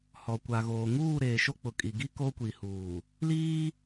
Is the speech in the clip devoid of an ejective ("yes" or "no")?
no